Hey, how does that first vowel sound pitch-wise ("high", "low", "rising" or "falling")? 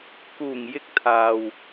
low